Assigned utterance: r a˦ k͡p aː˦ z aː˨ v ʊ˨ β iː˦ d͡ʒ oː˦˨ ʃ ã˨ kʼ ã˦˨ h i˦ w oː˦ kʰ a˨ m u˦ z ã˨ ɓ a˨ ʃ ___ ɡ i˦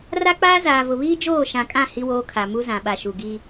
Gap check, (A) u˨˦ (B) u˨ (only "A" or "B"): B